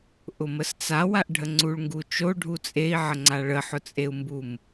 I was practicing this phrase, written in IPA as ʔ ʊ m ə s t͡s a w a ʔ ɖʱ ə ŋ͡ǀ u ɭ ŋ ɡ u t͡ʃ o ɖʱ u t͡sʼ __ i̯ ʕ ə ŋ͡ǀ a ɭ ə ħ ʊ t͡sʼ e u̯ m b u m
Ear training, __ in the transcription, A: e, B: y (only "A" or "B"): A